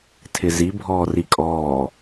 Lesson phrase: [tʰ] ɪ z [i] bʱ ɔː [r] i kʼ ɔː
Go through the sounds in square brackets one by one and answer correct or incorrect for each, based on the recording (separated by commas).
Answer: correct, correct, correct